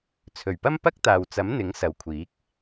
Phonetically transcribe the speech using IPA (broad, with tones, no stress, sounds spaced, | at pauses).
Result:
t͡sʰ ɵ˨˩ ɥ p ɐ˥ m p ɐ˥ k̚ t̪ aː˨ w t͡s ɐ˨˥ m n̪ ɪ˨˥ ŋ s ɐ˨ w kʷʰ iː˨˥ k̚